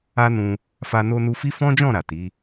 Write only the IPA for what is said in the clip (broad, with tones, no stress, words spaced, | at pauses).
a˦nũ˧ | fa˧no˧nu˧ fi˦ fɔ̃˦d͡ʒɔ̃˦˨ ɾa˨ti˨˦